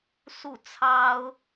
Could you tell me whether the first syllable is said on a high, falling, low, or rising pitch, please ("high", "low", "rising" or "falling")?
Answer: falling